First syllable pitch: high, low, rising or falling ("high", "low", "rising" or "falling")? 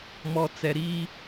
low